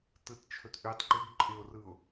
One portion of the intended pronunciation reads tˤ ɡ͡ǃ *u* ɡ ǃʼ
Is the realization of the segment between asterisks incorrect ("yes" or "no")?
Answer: yes